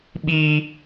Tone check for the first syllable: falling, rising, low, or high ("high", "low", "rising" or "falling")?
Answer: high